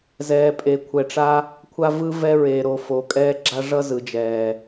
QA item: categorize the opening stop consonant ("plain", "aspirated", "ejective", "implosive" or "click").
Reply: ejective